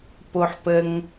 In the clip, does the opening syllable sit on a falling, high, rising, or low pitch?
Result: low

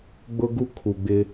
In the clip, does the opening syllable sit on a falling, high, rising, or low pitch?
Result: high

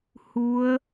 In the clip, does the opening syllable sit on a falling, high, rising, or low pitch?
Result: rising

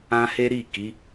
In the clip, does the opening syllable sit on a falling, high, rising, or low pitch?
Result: high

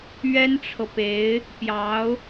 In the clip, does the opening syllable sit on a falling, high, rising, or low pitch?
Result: high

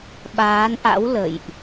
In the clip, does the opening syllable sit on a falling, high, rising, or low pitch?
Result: rising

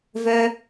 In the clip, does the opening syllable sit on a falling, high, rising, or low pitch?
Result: high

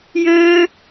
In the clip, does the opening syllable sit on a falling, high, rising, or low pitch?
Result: high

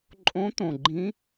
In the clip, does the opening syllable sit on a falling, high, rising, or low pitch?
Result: rising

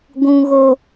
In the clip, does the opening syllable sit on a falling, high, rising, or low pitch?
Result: high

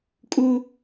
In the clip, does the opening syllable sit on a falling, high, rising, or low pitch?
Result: high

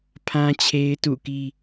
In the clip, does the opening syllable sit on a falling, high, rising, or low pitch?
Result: high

